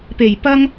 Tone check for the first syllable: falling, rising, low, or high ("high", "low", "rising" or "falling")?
low